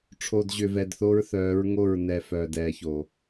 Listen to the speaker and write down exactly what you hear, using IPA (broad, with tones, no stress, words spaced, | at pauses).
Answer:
ʈ͡ʂʰoː˨dʑʏ˨ vɛ˨dθo˦ɹθœː˨˦ɹ ŋo˦˨ɹnɛ˨ fœː˨d ɛː˨ço˨